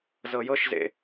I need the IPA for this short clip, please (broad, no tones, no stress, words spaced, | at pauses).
zɤjɤʃzḛ